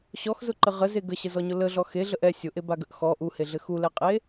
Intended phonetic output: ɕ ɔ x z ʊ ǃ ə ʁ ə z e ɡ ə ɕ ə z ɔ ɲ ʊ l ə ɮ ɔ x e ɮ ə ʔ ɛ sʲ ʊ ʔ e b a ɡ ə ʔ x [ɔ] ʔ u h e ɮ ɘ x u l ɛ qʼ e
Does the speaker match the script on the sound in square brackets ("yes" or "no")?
yes